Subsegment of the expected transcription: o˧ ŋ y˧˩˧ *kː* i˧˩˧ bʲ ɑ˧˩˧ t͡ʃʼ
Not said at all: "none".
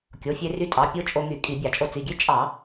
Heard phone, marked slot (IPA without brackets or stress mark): kʼ